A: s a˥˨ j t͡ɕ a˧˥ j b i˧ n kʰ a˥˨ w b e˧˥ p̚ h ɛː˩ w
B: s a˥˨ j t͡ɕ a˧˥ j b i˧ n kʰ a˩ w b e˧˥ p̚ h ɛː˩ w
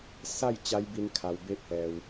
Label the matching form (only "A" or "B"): B